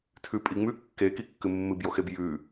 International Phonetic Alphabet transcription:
tʰ ʉ pʼ i ŋ͡m ʉ kː e k i kː ɨ mː ɨ b j o x e b j ʉ

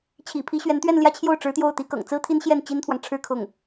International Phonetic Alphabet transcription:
t͡ɕʰ ḭ˨˩ pʰ i˧˥ ɕ ɥ ɛ˧˥ n t̪ ɥ ɛ˥˧ n l j ä˥˧ t͡ɕʰ j o˥˩ ʊ̯ ʈ͡ʂ ɻ̩˧˥ t̪ j o˥˩ ʊ̯ t̪ i˧˥ k ɤ̰˨˩ ŋ t͡s ɹ̩˥ t̪ʰ i˥ n ɕ j ɛ˥˩ n t͡ɕ i˥ n t̪ʰ w ɑ˨ ŋ ʈ͡ʂʰ ɻ̩˥ kʰ ʊ˥˩ ŋ

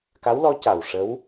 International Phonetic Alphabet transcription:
k a˧˥ w l ɔ˧˥ c a˨˩ w ʂ ə˧˥ w

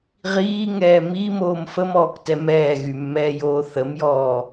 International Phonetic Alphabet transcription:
ʁ iː ŋ ɛː m i m oː m f ə m ɔː k t ɛ m ɛː ɣ y mː ɛː j oː θ ə m j ɔː

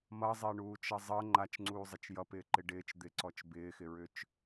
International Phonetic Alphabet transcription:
m ʌ zˤ ɪː ɳ uː t͡ʃ ʌ zˤ ɤ ŋ͡ǃ a t͡ʃ ŋ͡ǀ uː zˤ ɪ t͡ʃ j ʌ p ɪː ǃ ɪ ɖ ɪː t͡ʃ d̪ ɪ ǀ ɔ t͡ʃ b ɪː x ɪ ɹ ʏ t͡ʃ

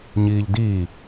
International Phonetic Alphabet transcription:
ɲ iː ʎ d iː

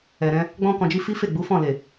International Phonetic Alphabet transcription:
ɛ˨ ɾ ɛ̃˧ | ɡ͡b ɔ̃˧ k ɔ̃˨ d͡ʒ i˧ f i˦ f e˦˨ ɡ͡b u˨˦ f ɔ̃˦˨ l e˨

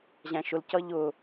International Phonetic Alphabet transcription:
ʑ æ̃ ʃ ʊ l c ʌ ʎ ʊ

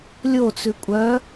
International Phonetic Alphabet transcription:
lʲ o t͡s ʉ kʷʼ œ

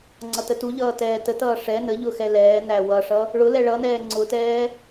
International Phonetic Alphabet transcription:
ŋ͡ǀ ʌ t ə t u ʎ ʌː t ɛː t ə t ʌː ʂ ɛ n ə ʎ ʊ x ɛ l ɛː n æ w ʌ ʂ ʌ | ɭ ʊ l ɛ ɭ ʌ n ɛː ŋ͡ǀ ʊ t ɛː

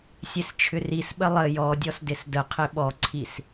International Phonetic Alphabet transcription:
sʲ e s t͡ʃʰ ʏ r i s ɓ ə lˠ ə j ɔ dʲ ɔ s d ɪ s d ə qʰ ɪ ɓ ɔ ǀʰ i s

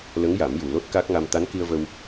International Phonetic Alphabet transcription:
l ə˧˥ ŋ j a˨˩˦ m j u˨˩ l o˦˥ t̚ k a˦˥ k̚ ŋ a˧ m t̪ a˧˥ n k i˧ ə̯ v ə˧ w

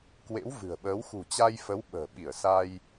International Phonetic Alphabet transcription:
k w ḛ˧˥ w v ɨ̤˨˩ ə̯ ɓ əː˨˦ w x ṳ˨˩ t͡ɕ a˧ j f ə˨˦ w ɓ ə̤ː˨˩ ɓ i˧˩ ə̯ s a˧ j

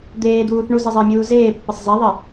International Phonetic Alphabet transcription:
d̪ eː d̪ uː θ ɳ u z i zˤ ɪː mʲ uː z eː pː ɪ sˤ z e ðˤ ɪ

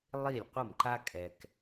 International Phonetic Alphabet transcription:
lˠ i˥˩ lʲ qʷ ʌ˥˩ m ǃ a˥ kʼ ɛ˧ k

